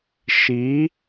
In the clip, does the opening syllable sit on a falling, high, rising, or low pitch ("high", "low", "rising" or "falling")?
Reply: rising